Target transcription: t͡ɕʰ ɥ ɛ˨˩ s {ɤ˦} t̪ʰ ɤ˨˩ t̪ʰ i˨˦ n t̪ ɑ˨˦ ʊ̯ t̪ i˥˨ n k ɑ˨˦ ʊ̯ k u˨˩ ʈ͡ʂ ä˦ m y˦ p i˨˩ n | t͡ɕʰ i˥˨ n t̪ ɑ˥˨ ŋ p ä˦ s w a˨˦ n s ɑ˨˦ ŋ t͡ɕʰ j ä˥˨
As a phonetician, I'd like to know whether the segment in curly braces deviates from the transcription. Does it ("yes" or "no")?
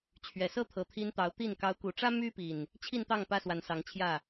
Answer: no